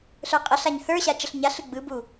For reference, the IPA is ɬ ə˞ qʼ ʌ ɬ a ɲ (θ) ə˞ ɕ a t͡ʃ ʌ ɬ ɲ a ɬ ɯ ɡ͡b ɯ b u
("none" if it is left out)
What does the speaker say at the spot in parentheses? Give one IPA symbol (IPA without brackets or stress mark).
θ